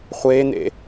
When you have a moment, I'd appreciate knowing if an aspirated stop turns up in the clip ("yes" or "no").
no